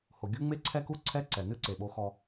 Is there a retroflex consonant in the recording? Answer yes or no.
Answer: no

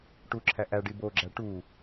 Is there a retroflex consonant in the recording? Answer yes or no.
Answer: yes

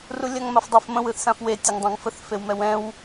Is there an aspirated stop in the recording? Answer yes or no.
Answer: no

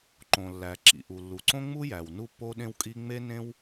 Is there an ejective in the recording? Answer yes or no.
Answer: yes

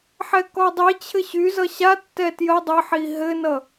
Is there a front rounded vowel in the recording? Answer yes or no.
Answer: yes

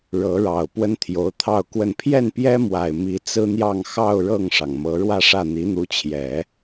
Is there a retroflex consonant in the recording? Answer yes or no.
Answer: yes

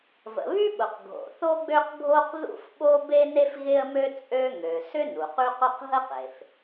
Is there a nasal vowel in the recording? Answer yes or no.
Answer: no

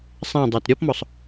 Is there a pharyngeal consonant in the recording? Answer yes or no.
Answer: no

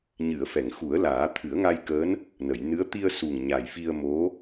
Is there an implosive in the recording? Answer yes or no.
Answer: no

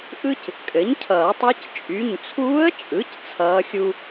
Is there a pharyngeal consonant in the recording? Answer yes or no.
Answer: no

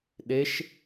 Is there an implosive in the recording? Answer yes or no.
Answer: yes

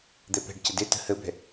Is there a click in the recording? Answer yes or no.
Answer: no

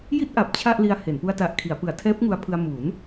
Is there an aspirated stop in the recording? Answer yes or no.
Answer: yes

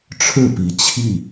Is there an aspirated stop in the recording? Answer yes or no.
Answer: yes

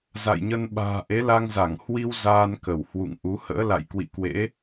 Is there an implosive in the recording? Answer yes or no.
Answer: yes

